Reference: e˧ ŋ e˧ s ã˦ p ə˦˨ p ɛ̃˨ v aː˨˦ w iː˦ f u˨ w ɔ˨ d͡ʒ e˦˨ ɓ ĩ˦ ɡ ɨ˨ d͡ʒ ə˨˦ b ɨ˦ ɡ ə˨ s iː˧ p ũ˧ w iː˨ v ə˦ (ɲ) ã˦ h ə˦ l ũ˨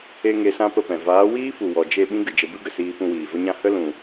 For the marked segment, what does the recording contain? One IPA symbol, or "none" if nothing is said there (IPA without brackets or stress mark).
ɲ